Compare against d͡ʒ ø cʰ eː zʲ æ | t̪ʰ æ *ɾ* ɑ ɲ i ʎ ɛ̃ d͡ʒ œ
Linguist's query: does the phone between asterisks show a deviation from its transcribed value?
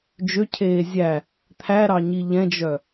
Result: no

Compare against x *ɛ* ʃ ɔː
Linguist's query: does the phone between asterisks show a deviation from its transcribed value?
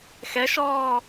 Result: no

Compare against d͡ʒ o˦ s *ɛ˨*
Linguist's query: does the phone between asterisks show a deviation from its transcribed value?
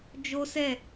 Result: yes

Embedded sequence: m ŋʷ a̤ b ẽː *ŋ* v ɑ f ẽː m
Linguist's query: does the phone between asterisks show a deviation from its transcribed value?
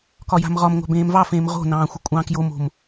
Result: yes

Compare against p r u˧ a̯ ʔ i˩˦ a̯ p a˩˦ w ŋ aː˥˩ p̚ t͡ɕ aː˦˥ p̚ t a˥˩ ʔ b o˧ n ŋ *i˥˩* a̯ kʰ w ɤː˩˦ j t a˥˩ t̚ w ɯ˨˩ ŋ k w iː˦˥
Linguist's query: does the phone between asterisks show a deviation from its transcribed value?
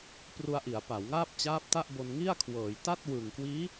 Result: no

